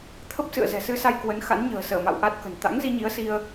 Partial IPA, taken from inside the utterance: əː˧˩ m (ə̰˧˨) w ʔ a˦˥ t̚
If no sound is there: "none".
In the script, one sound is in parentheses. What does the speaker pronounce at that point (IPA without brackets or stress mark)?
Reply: a̰˧˨